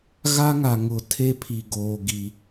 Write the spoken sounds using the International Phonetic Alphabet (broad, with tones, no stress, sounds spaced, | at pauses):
ɣ a˦ ŋ a˨ ŋ ʊ˨ tʰ e˦ pʰ i˨ ɡ oː˨ ɡ i˨